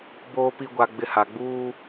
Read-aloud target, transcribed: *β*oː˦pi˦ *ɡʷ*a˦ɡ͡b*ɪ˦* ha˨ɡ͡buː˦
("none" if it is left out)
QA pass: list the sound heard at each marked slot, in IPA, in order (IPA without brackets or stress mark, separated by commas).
b, ɡʷ, ɪ˦